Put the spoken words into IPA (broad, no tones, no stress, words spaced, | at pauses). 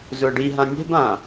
zʊə̯ɖiɦã nʲɛ̤bã